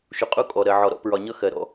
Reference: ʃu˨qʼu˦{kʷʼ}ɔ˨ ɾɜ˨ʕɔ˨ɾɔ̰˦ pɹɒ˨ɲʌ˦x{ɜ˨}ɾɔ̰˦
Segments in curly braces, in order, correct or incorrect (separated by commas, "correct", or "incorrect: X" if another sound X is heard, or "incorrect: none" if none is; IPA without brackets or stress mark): incorrect: kʼ, correct